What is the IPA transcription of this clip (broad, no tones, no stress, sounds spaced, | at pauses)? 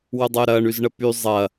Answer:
w ʊ dˤ ʊː ɾ ɐː ɳ y z ɳ ə p y zˤ ɐ